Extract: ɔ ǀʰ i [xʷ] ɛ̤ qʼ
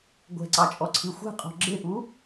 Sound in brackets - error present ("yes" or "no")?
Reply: no